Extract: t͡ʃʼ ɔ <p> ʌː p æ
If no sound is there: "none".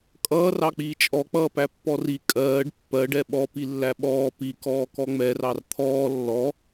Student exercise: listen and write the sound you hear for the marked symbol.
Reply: k͡p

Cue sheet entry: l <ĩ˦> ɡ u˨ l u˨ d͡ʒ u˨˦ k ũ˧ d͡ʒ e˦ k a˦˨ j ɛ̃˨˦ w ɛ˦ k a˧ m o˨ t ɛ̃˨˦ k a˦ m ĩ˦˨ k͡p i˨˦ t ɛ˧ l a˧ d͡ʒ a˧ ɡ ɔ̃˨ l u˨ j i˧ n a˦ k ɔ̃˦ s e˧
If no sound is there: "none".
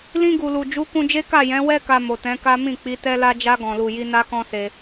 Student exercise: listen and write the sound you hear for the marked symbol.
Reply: ĩ˧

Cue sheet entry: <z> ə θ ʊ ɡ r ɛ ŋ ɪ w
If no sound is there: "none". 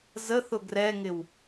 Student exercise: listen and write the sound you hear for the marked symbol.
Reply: z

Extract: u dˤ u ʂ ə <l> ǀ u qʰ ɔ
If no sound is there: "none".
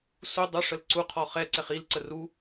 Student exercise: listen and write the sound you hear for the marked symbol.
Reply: l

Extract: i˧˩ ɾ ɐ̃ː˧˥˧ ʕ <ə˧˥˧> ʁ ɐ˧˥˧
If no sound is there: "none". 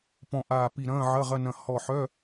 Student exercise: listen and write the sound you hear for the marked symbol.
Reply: ɐ˧˥˧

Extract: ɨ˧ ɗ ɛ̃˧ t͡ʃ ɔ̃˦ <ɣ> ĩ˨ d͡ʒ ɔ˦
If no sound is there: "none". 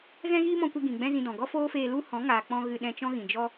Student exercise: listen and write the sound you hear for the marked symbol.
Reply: ɣ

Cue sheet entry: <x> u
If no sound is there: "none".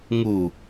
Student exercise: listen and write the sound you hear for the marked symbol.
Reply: ŋ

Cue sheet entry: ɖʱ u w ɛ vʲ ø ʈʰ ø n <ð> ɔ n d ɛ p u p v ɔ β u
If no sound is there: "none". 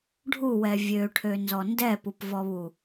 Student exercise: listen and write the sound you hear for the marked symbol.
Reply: z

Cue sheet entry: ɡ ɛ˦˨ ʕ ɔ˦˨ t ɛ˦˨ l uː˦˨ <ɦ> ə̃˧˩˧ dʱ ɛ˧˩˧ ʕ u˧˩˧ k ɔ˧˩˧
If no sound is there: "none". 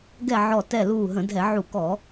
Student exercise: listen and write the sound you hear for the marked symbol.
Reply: ɦ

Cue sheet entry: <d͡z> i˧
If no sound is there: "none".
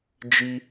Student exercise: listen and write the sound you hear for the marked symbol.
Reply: d͡ʒ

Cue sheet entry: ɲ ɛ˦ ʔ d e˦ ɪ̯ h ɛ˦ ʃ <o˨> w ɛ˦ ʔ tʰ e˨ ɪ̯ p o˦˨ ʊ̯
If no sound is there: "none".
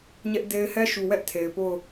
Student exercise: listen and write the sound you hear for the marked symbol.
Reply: u˨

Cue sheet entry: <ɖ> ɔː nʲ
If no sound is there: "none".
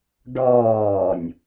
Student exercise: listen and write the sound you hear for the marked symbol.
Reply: ɖ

